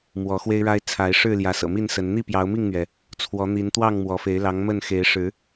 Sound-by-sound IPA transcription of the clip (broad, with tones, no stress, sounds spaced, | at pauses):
m w ɔ˨˦ x w e˦ ɪ̯ ɻ a˦ ɪ̯ t͡sʰ a˨˦ ɪ̯ ʂ ɻ̩˥˨ l j ä˨˦ s ɤ̰˨˩ m i˥˨ n s ə˨˦ n n̪ i˥˨ p j ɑ˨˦ ʊ̯ m i˥˨ ŋ n̪ ɥ ɛ˩ | t͡sʰ w ɔ˨˦ n̪ i˨˦ n t̪ w ɑ˥˨ ŋ m w ɔ˨˦ f e˨˦ ɪ̯ l ɑ˨˦ ŋ m ə˥˨ n x e˨˦ ɪ̯ ʂ ɻ̩˨˦